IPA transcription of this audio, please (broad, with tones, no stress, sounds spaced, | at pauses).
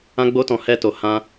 ã˦ ɡ͡b o˦ t ɔ̃˧ h ɛ˦ t o˧ h ã˦